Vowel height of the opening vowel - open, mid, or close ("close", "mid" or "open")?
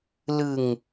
close